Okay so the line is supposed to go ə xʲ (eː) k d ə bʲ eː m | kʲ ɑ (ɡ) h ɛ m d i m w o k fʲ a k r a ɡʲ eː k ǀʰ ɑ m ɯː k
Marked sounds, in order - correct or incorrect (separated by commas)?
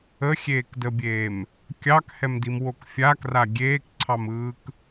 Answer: correct, incorrect